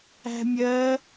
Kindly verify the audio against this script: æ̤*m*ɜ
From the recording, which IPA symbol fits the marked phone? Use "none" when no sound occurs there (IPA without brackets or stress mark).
mʲ